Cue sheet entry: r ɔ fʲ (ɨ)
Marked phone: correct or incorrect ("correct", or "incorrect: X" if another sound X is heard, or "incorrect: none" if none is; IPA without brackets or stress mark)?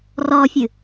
correct